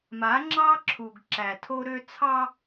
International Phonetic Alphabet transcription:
ma˨˦ŋ͡ǁɑ˦ ǁʰu˨ɡ ǁæ˨tʰo˦ɾø˦ t͡sʰɑ˦

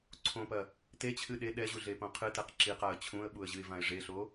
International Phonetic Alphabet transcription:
ǀʰõpɐ | tet͡ɕʰɨ ɗe ɗɛʑuɮepõ qʰɨtɛq ǁiqaə̯ t͡ɕʰũə̯ɓuə̯ʑɨɪ̯vãɪ̯ ʐeɬo

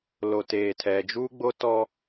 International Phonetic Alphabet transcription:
lo˨teː˨tʰɛ˨d͡ʒuː˦ ɡ͡bo˦tɔ˦

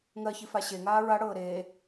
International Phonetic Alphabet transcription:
ŋɜçifa ɕeŋaː ɹaɽɤː ɾeː

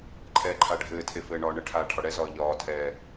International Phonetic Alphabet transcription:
ǃʰɛːǃʰaɖʱɘːtʰe fɘːɳɒːɳɘʈʰaː ʈʰɒɽɛzɒː ʎɒːtʰɛː

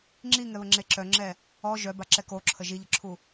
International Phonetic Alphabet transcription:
ŋ͡ǁiŋɛβəŋ͡ǁe ǁœŋ͡ǁɛ | ɔ ʒœbaǁɛ koǁʰə ʒiʎəǁʰu

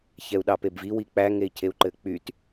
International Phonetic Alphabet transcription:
çɛu̯ɗɑpebvi wik͡pæ ŋei̯cʰeu̯ǃɘk͡pyt

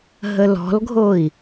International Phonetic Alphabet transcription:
ɦəlɔ̤lɡʱoi̯

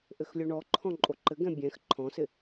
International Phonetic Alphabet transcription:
ʔɘxlʲoɳɔǃʰɔ̃ ǃʼoǃɘɡɛ̃ bʲɛ̃x ǃʰɔ̃sɪ

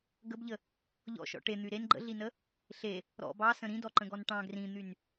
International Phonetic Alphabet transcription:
ɡəbʎə | ʎɔ̰ʃɔ̰ ʈen̪y ɾen ɡ͡ǃə̰ɮinə | ɬe | ɾɔ̰ bɑsə̃ ɾĩdɔǃə̃ɡɔn ʈɑ̃ ɡrĩn̪yn

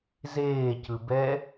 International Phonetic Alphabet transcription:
zeːcɯbɛ

